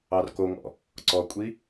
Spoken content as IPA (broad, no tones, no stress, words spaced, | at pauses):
ɑrkoŋɔ̰ | ǀɔkʷʼi